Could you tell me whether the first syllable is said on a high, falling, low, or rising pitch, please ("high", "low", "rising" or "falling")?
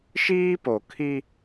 high